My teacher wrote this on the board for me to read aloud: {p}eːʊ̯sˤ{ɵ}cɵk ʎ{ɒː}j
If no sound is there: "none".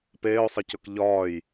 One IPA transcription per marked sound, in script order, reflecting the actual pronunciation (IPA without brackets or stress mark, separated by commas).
p, ə, ɒː